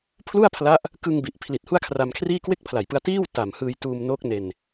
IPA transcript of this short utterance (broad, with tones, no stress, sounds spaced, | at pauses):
pʰ l u˥˩ a̯ pʰ l a˦˥ ʔ | k ɯ˧ ŋ b i˨˩ ʔ pʰ l i˨˩ t̚ h u˥˩ a̯ kʰ r a˧ m kʰ r iː˥˩ k w e˥˩ k̚ pʰ l a˨˩ j p ɯ˧ a̯ t iː˥˩ w t a˨˩ m h ɯː˧ j t uː˧ m n o˦˥ k̚ n e˧ n